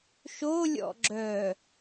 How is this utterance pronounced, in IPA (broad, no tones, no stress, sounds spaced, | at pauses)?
ʃ o lʲ ɔ̰ ɡ͡ǁ œ